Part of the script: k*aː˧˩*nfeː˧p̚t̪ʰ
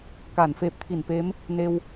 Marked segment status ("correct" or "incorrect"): correct